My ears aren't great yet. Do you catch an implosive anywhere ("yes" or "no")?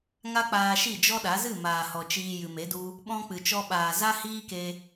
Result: yes